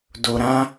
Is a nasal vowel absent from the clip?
no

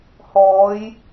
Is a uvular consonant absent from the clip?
yes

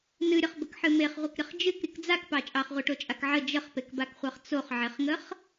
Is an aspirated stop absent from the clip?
yes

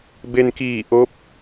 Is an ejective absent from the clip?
yes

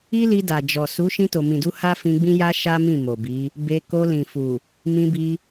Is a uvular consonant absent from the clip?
yes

